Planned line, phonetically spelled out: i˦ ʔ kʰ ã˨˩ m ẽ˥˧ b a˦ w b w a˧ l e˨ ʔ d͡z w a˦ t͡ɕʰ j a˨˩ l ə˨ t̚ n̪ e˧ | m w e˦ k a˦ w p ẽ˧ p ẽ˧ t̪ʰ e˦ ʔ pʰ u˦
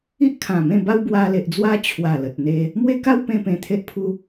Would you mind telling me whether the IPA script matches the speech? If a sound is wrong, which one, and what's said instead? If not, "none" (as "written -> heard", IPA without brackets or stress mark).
j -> w